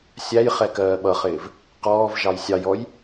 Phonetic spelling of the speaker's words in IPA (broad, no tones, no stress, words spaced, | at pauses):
sʲæjχɛ kɜːɓʌχɪːv | qɔːvʒɑj sʲɑjɔj